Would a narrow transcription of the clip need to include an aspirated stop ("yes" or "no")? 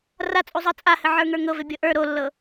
no